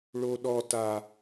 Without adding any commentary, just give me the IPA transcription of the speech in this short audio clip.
ɭ o ɗ ɔ t a

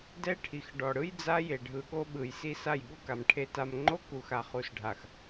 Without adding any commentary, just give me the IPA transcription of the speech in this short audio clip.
d ɛ˦ ʈʰ i˨ x ɖ ɔ˨ ɽ ɯ˦ j d͡z a˦ j e˨ ɖʱ ɯ˨ ɠ o˦ ɓ ɯ˨ j s i˦ s a˦˨ j ɠ u˦ k a˨ m ʈʰ e˨ t a˨ m ŋ͡ǃ o˦ k u˨ x a˨ χ u˨ s ɖʱ a˨ x

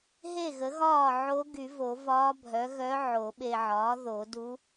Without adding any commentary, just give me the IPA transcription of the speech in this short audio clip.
ɦ e˥˩ ɣ ə˩˥ ɣ ɒː˥˩ ʕ o˧˥ ɡ y˨˩˦ v o˨˩˦ v ɒː˧˥ bʱ œ˩˥ ɣ œ˧˥ ʕ o˨˩˦ ɓ e˨ ʕ ɒː˩˥ ð o˨˩˦ d u˧˥

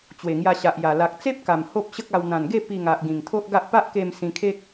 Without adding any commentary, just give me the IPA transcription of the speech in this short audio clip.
t͡ɕ w e˨˩ ŋ j a˧ ɕ a˨ ʔ j a˨˩ l a˨ k̚ t͡s e˦ p̚ k a˨˩ m h o˦ p̚ ɕ ə˦ k̚ a˧ w n̪ ã˨˩ n ɡ e˥˧ p i˧ ŋ a˨ ʔ ɡ ĩ˨˩ ŋ t̪ʰ o˦ ʔ ɡ a˦ ʔ p a˦ ʔ k e˧ m s ĩ˧ kʰ e˦ k̚

